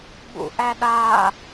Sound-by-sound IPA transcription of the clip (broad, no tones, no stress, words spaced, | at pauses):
ɓṵʔæɗa